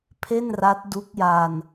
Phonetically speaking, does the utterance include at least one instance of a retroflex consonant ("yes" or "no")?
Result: no